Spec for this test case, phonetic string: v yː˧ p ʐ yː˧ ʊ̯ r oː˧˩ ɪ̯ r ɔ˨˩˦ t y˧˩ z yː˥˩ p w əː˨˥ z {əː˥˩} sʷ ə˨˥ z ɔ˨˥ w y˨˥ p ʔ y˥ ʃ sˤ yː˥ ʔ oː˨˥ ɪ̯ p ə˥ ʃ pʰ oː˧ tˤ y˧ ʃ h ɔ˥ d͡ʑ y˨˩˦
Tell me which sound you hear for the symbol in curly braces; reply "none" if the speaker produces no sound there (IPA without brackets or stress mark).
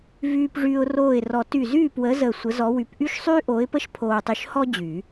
əː˧˩